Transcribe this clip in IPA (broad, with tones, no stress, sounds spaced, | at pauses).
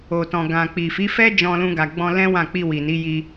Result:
o˨ t ɔ̃˨ ɡ ã˨ k͡p i˨ f i˨˦ f ɛ˦ d͡ʒ ɔ̃˧ l ũ˧ ɡ a˨ ɡ͡b ɔ̃˧ l ɛ̃˦ w ã˦˨ k͡p i˧ w i˨ n i˨˦ j i˧